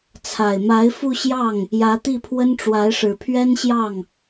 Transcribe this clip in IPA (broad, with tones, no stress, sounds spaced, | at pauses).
t͡sʰ a˨˩ ɪ̯ m a˧˥ ɪ̯ f u˥˧ ɕ j ɑ˥˩ ŋ | j ä˧˥ t̪ i˥˩ pʰ w ə˥ n ʈ͡ʂ w a˧˥ ɪ̯ ʂ ɻ̩˨˩ pʰ ɥ ɛ˥ n ɕ j ɑ˥˩ ŋ